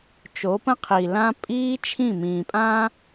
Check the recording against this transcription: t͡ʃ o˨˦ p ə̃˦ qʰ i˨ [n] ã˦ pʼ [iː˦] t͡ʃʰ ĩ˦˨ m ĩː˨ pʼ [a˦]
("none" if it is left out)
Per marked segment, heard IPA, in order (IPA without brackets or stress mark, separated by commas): l, iː˦, ã˦